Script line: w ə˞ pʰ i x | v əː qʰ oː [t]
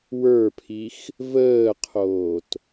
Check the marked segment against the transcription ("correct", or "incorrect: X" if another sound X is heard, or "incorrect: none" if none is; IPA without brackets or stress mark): correct